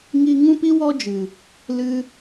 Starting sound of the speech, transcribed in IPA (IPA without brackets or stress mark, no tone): ŋ